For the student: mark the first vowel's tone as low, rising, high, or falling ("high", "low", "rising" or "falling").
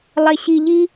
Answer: low